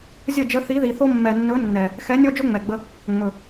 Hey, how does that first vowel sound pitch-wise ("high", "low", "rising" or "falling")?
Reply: falling